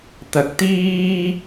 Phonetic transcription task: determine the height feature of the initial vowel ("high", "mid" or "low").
low